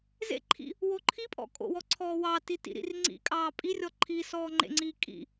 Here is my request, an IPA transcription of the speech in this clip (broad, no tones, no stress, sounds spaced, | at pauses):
z ḛ ǃʰ ḭ | w o ǃʰ i pʼ ɔ̰ kʼ o̰ w ɔ ǀʰ ɔː w ɑ t i t ḭ ɾ ḭ r ŋ͡ǀ ḭ kʼ ɑː pʼ i rʲ ɔ ǃʰ i s ɔː ŋ͡ǃ ḛ ŋ͡ǀ iː kʼ ḭ